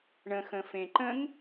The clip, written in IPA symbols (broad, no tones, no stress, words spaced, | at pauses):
ɳə̃xə̃fẽ ǃə̃ŋ